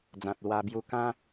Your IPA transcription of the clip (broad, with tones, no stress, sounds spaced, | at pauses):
d͡z ã˨ t̚ l w a˧ b j u˧ k ã˦